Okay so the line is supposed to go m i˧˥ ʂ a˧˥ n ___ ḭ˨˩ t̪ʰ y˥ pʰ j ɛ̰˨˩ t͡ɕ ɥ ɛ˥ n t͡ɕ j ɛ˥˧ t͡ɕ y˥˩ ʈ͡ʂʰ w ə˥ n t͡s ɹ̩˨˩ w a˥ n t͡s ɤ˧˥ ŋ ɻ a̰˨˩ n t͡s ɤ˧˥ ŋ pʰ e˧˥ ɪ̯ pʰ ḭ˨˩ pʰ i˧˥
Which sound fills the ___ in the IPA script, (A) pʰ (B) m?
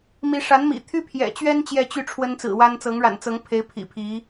B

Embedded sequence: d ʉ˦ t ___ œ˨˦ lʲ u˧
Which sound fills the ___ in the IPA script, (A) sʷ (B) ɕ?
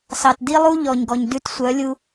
A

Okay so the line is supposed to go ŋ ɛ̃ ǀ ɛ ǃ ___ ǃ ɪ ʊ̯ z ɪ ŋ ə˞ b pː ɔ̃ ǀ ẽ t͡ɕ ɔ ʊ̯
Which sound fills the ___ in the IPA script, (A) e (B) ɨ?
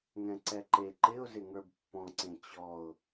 A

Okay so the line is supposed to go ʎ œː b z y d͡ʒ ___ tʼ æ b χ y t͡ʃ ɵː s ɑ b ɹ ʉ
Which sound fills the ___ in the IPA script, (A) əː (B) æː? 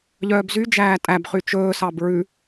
B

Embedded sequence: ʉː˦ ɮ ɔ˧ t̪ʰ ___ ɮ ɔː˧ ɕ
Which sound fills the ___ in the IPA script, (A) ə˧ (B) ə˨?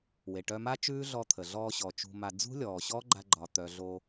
B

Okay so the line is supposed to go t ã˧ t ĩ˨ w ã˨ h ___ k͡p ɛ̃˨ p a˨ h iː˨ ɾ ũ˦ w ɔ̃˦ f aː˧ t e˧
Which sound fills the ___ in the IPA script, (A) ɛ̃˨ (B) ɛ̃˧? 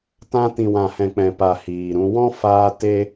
A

